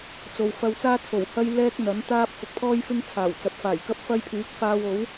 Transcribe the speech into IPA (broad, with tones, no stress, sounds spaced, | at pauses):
t͡s o˨ w f ɐ˧ w t͡s aː˥ t͡sʰ o˨˩ w h ɐ˥ j l ɛː˥ k̚ n̪ ɐ˨˥ n t̪ aː˥ p̚ f ʊ˨˥ k̚ t̪ʰ ɔː˥ j f ɪ˥ ŋ t͡sʰ aː˨˩ w t͡s ɐ˨ p̚ f aː˨˩ j k ɐ˥ p̚ f ɐ˧ j pʰ yː˨˥ k̚ f aː˧ w o˨˥ w